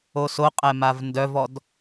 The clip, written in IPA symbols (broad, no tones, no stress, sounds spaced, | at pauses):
o s o qʼ ɛ m a v n d œ v ɔ d